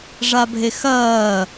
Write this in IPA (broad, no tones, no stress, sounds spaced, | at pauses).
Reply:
ʐ a bʱ e x ɐː